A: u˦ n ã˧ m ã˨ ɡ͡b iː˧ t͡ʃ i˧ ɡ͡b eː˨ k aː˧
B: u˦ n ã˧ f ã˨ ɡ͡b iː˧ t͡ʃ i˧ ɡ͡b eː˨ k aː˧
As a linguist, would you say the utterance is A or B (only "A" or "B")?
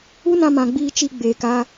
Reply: A